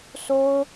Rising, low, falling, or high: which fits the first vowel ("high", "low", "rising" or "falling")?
high